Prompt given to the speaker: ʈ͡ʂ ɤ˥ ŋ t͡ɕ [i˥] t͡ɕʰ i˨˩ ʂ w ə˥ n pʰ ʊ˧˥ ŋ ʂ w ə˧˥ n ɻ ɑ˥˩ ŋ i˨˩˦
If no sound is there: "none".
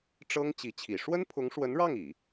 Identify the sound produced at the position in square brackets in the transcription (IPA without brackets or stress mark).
i˧˥